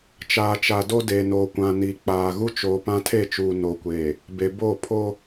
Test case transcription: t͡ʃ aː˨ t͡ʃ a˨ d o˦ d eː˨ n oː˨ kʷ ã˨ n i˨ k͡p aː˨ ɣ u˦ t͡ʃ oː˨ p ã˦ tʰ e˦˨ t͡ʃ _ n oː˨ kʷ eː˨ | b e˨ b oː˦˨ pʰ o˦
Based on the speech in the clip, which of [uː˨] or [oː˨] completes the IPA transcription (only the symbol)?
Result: uː˨